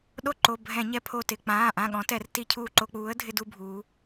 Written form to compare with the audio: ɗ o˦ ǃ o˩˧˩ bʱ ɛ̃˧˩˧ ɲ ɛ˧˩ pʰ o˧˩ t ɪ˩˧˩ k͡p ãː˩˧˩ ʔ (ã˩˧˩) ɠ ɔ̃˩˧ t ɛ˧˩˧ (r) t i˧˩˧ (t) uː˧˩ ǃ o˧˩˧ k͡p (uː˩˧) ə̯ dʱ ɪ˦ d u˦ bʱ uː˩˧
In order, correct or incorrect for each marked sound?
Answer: correct, correct, incorrect: cʰ, incorrect: uː˩˥

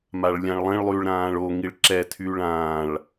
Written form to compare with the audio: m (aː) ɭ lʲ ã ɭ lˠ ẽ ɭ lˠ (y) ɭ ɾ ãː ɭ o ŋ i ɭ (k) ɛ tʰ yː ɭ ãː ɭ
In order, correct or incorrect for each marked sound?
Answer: incorrect: a, correct, incorrect: ǁ

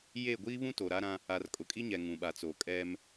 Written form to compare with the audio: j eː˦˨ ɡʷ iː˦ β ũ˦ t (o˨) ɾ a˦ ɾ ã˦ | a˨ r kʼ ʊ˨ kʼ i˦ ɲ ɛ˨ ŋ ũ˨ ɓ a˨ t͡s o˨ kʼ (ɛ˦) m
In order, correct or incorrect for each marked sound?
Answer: correct, correct

